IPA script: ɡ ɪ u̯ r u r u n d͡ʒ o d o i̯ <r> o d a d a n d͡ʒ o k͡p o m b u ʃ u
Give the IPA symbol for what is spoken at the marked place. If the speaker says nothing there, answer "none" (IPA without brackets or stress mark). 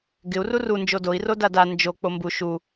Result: r